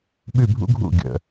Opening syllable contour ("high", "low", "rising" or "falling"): falling